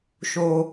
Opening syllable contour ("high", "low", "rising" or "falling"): low